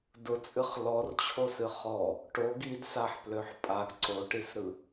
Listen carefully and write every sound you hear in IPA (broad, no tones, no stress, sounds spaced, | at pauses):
d ʊ t͡sʼ ɨ χ l ɔ r t͡ɕʰ o s ɨ χ ɔ | ʈ o ɡ i d s a ħ p l ø ħ pʼ a ɡ ǀ o ʈ i s ɾ ɯ